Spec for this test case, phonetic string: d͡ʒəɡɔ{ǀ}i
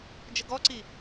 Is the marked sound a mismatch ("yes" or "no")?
no